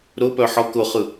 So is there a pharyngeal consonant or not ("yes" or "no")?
yes